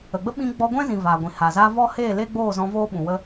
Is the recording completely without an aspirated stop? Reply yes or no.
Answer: yes